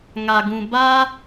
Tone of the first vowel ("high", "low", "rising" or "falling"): low